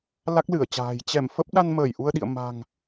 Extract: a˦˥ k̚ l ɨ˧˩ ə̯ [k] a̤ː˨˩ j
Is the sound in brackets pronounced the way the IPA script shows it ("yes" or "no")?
no